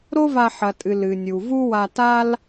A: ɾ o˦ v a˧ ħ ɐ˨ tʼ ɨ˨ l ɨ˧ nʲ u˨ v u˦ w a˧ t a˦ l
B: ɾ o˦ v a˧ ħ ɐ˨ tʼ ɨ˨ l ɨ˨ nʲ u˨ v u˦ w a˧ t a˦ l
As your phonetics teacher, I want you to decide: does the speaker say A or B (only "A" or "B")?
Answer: B